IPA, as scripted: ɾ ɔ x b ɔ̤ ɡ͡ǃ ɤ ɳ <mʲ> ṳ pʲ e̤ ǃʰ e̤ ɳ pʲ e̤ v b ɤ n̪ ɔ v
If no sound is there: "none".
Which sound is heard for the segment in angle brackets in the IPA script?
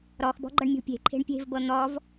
mʲ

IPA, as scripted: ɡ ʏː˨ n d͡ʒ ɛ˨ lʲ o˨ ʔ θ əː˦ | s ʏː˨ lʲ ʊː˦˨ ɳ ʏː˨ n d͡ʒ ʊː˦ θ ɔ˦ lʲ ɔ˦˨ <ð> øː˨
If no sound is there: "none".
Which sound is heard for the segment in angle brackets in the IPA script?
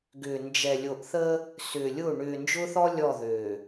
ð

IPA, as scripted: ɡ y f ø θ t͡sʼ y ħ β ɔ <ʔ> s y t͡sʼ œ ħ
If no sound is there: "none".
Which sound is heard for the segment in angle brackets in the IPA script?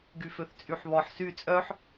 ħ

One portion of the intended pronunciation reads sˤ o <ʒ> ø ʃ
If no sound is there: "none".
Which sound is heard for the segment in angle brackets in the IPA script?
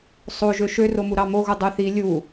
ʒ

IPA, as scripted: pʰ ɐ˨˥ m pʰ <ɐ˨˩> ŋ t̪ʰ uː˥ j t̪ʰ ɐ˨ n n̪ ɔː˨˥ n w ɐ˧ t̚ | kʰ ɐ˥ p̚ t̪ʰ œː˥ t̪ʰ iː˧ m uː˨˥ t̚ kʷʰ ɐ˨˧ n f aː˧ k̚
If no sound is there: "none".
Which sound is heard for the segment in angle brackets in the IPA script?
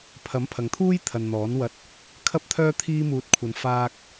ɐ˨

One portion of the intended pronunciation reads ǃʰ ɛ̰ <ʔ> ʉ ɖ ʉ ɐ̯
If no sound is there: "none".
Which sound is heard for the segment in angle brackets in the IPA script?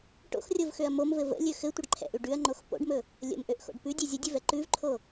ʔ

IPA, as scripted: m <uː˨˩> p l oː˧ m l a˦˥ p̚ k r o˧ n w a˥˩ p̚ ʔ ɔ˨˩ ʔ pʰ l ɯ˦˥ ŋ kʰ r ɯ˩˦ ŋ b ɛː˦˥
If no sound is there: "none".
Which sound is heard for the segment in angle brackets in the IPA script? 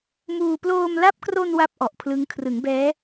uː˧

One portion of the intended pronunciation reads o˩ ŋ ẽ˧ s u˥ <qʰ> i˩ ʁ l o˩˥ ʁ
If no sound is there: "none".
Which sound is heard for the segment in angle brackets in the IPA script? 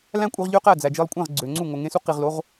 q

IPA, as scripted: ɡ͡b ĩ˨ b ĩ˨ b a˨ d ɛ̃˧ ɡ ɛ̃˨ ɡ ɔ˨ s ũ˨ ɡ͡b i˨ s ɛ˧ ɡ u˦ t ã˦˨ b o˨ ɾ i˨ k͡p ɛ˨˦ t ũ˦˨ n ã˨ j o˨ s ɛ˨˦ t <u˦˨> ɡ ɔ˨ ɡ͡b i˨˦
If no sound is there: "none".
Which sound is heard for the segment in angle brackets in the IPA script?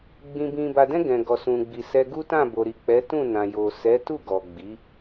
u˦˨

